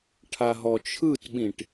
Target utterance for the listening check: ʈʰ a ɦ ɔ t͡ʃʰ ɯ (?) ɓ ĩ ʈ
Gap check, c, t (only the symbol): t